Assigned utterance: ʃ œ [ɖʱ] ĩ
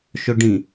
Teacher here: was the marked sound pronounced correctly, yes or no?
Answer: no